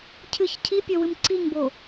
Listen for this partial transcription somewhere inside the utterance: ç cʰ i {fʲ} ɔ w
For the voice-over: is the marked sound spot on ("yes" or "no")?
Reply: no